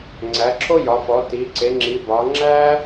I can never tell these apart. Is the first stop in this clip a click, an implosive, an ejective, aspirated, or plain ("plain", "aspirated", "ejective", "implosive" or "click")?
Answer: click